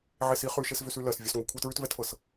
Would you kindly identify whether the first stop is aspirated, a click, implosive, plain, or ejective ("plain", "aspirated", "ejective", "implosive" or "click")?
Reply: aspirated